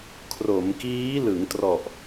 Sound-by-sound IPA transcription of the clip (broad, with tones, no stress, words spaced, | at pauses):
kʰro˩˦mkiː˦˥ lɯ˩˦ŋtrɔ˨˩ʔ